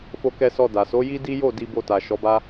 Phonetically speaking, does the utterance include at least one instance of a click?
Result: no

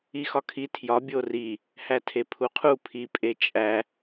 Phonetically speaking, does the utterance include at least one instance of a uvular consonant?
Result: yes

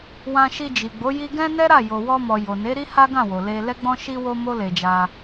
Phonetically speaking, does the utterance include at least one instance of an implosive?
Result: no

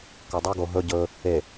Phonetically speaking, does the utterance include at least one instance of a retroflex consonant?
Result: no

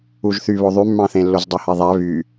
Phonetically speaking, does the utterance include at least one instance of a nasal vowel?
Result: yes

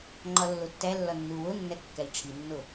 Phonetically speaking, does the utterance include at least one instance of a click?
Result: yes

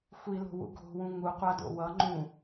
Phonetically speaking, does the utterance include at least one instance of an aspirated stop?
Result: no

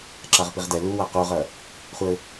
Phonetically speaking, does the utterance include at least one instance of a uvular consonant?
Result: yes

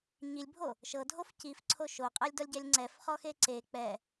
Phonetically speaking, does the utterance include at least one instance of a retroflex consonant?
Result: no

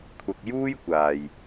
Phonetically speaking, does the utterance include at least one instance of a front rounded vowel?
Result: no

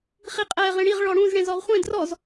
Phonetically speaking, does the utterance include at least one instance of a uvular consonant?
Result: yes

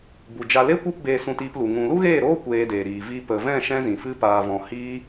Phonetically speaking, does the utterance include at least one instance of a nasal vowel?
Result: yes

